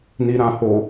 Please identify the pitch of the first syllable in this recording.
low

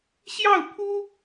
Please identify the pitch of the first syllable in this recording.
falling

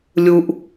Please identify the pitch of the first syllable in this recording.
low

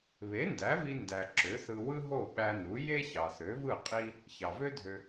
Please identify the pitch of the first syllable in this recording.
rising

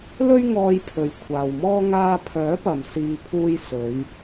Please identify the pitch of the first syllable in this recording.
high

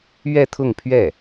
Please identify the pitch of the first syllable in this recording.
falling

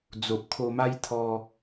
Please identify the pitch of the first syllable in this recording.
low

